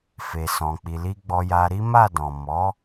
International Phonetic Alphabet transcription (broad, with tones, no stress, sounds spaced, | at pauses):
f e˨ s ɔ̃˨ k͡p i˨ l i˧ ɡ͡b ɔ˧ j a˧ ɾ i˦ m a˦˨ d ɔ̃˨ m ɔ˨˦